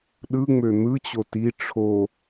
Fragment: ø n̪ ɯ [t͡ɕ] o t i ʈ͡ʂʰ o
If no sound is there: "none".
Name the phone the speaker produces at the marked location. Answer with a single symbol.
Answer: t͡ɕ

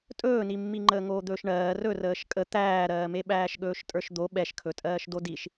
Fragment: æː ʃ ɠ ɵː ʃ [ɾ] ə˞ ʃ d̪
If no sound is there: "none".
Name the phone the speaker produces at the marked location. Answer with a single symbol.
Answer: tʼ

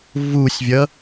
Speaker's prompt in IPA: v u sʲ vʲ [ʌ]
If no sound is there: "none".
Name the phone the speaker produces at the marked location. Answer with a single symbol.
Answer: ʌ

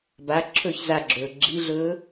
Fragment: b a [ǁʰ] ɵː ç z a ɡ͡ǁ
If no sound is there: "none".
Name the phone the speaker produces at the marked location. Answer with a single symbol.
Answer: ǁʰ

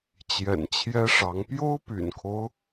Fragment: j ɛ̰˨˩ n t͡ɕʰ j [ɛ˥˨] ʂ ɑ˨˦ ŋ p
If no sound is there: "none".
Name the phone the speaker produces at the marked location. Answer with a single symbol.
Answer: ɛ˦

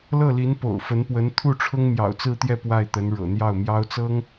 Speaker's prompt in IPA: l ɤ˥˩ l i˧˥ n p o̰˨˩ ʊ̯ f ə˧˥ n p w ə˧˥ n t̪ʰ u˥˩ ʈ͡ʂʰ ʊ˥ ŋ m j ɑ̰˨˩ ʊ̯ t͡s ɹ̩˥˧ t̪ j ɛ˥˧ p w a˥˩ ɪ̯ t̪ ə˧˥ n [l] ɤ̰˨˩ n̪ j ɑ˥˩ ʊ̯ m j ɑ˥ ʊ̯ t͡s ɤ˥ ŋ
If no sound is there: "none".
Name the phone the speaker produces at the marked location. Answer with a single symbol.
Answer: ɻ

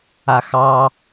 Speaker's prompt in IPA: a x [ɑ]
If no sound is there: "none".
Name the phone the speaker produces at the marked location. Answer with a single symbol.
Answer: ɑ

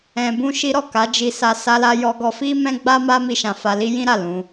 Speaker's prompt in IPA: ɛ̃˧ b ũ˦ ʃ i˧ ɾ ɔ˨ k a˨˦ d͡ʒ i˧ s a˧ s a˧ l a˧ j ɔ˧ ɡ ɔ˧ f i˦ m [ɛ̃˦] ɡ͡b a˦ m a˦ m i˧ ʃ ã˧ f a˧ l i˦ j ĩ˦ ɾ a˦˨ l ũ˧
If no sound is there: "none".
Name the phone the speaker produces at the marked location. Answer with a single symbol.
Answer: ɛ̃˦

